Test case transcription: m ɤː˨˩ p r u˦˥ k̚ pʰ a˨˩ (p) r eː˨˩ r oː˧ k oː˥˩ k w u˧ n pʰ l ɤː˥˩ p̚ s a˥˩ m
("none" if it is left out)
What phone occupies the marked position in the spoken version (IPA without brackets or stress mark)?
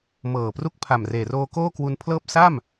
m